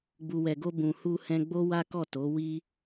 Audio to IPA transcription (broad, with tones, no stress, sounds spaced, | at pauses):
ɡ͡b u˨ w ɛ˨ ɡ o˧ b ũ˨ h u˧ h ɛ̃˧ ɡ͡b o˦ w a˦ k ɔ˦˨ t o˨˦ w i˦